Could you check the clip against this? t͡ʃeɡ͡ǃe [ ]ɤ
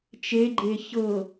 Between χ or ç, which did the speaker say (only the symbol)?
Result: ç